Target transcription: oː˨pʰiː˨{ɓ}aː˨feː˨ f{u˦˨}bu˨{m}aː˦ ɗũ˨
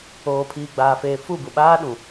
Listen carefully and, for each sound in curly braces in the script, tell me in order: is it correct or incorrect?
incorrect: ɡ͡b, correct, incorrect: ɓ

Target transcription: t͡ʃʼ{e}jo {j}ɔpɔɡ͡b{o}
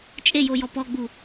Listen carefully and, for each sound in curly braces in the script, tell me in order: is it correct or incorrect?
correct, correct, incorrect: u

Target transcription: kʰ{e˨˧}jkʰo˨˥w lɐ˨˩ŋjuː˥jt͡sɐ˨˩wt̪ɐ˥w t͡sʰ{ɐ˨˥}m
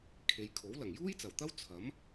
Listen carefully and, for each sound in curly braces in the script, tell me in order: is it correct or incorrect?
correct, correct

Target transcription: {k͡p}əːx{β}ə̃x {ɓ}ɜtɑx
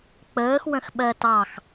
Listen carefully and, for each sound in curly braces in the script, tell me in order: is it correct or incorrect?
correct, incorrect: w, correct

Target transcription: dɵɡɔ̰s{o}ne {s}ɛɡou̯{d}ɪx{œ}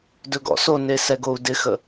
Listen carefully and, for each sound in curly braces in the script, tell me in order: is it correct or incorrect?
correct, correct, correct, incorrect: ə

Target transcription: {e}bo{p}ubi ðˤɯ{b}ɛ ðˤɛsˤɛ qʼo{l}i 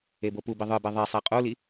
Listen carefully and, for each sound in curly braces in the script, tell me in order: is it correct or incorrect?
correct, correct, correct, correct

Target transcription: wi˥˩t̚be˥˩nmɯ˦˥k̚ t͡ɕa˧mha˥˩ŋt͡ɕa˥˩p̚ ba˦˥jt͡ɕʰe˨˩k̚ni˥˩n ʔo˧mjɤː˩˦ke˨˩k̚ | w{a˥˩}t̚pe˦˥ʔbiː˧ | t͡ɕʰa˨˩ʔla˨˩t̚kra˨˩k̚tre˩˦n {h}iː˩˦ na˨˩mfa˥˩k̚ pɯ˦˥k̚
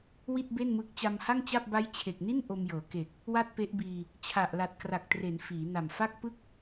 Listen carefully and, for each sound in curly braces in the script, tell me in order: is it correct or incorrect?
correct, incorrect: f

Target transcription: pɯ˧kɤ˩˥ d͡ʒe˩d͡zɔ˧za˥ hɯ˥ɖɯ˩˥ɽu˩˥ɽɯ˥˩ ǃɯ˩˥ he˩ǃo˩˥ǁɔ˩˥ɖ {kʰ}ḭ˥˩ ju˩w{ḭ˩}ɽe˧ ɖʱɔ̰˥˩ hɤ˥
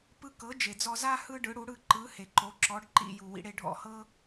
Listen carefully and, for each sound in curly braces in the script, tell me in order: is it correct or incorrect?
incorrect: ǃ, incorrect: ḭ˩˥

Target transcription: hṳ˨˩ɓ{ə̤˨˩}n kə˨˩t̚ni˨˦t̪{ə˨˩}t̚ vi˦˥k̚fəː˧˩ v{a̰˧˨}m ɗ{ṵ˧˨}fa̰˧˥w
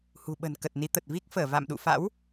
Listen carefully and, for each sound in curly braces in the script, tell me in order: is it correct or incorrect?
correct, correct, correct, correct

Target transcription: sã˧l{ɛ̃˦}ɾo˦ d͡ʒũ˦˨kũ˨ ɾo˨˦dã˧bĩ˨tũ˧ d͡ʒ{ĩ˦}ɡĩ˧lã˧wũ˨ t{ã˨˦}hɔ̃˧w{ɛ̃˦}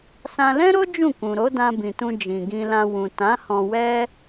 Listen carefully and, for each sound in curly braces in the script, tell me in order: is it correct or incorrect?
correct, incorrect: ĩ˨, correct, incorrect: ɛ˦

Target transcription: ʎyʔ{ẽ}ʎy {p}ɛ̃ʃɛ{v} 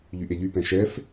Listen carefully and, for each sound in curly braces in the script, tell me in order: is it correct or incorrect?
incorrect: e, correct, incorrect: f

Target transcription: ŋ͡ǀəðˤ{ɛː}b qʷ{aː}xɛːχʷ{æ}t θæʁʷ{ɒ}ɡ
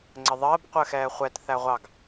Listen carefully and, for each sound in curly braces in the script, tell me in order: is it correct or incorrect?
incorrect: əː, incorrect: əː, incorrect: ɛ, incorrect: ɑ

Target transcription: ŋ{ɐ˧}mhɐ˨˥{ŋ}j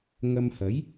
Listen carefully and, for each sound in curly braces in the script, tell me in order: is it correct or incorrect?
correct, incorrect: none

